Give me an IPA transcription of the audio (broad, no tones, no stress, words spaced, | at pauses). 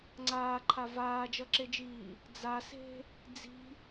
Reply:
ŋ͡ǀaːǃʰa vaːd͡ʒʌǁed͡ʒiː | d͡zase̤ | d͡zi̤